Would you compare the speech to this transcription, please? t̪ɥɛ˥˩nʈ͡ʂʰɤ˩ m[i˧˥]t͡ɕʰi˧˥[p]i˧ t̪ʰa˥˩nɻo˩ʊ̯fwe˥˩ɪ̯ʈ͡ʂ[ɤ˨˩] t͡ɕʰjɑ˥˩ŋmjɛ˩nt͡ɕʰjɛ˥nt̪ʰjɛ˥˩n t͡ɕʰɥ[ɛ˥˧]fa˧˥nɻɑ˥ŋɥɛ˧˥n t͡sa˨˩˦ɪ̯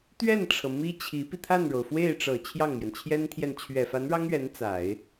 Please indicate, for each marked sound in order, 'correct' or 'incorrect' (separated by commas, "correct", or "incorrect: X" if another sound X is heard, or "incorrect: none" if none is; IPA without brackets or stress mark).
incorrect: i˥, correct, correct, incorrect: ɛ˨˩